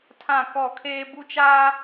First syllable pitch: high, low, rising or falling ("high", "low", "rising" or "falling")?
falling